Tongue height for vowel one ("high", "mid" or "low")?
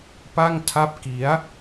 low